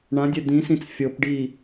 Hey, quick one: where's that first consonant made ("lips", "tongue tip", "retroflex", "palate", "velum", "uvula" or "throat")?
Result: retroflex